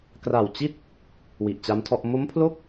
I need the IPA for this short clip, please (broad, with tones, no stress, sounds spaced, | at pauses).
k r a˨˩ w t͡ɕ i˥˩ t̚ | w i˨˩ ʔ t͡ɕ a˦˥ m tʰ ɔ˥˩ ʔ m o˦˥ m pʰ l o˥˩ k̚